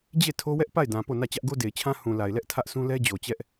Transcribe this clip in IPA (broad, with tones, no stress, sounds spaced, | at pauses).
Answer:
d͡ʑ e˦˨ tʰ o˦ w ɛ˦ ʔ p a˦˨ ɪ̯ d ã˨ p o˦˨ n ä˦˨ t͡ɕ ä˦ ʔ ɡ o˦ d e˨ ɪ̯ t͡ɕʰ ã˦ h ũ˨ l a˨ ɪ̯ l ɛ˦ ʔ tʰ ä˦ ʔ s ũ˦ l ɛ˦ d͡ʑ o˨ t͡ɕ ɛ˦ ʔ